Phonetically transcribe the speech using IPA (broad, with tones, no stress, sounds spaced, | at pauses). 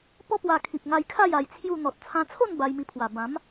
p ɔ˦ p w a˧ kʰ i˨ p̚ ŋ a˧ j kʰ a˥˧ j a˧ j t͡sʰ j u˥˧ n̪ ɔ˨ t̚ t͡sʰ ã˧ t͡sʰ o˥˧ n b a˧ j m i˧ pʰ w a˨˩ b ã˨˦ m